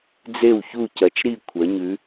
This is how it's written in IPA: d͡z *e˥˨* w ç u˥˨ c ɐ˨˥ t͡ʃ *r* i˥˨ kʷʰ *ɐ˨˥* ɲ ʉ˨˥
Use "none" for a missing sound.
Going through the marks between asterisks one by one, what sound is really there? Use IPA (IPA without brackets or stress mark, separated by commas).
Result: e˥˨, ɾ, ɐ˨˥